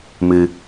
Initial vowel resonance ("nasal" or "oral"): oral